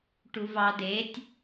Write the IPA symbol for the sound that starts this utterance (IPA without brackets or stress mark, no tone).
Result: ʈ